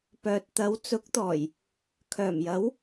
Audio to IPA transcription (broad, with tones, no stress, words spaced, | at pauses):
pœː˨t̚t̪ɐ˨˥wt͡sʊ˨˥k̚t̪ɔː˨˩j | kʰœː˨˩mjɐ˨˥w